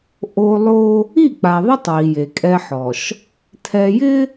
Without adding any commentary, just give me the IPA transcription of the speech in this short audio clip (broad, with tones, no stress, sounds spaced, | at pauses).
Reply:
ʔ o˦ lˠ o˦ | i˦˨ k͡p a˨ ðˤ ɛ˦ tˤ w i˨ j e˨ kʼ ɛ˦ ħ ɔ˨ ʃ | tʰ ɛ˨ j ɪ˦